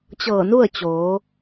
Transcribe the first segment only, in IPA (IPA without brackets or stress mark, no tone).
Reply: t͡ɕ